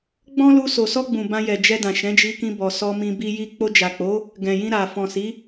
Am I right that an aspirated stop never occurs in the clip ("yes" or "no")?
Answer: yes